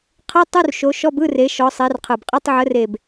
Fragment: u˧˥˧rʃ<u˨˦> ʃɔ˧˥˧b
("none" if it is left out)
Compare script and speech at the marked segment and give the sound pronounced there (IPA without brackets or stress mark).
o˨˦